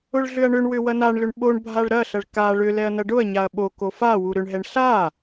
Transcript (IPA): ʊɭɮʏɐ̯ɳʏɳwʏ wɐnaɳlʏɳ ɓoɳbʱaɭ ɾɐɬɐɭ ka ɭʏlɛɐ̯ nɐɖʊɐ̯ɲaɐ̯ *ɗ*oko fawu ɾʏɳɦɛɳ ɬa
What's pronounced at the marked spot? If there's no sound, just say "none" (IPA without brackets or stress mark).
ɓ